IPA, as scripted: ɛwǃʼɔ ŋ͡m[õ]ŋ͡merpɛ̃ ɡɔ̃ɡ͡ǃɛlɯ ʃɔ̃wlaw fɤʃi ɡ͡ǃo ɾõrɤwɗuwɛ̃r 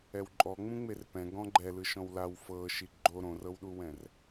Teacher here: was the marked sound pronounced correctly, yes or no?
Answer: no